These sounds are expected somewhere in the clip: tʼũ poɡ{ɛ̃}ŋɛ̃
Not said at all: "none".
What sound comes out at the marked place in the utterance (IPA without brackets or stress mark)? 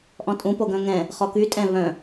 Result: œ̃